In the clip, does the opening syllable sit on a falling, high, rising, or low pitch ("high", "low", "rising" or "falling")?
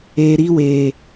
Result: low